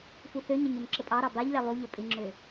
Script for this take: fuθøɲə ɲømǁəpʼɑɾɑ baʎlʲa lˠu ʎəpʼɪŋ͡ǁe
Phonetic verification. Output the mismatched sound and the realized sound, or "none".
e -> ø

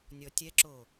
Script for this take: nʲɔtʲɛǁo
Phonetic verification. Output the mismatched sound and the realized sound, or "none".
none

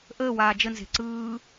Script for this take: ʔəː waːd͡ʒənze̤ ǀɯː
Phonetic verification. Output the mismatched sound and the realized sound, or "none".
none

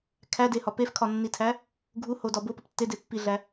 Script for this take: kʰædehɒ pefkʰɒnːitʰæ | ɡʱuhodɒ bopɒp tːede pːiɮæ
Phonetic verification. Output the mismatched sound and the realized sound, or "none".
none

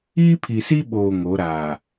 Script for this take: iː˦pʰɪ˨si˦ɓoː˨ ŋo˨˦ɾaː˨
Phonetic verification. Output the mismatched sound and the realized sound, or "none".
ɪ˨ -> i˨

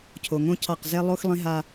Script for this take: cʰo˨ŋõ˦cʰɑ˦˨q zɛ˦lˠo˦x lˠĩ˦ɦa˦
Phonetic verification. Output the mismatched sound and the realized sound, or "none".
none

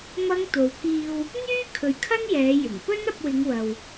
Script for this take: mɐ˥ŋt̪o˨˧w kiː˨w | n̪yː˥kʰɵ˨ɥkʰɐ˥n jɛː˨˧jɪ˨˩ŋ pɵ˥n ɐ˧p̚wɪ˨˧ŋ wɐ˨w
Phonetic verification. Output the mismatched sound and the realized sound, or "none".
none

